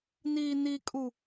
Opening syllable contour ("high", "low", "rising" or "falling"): low